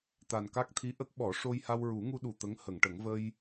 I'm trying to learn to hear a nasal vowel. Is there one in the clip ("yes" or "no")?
no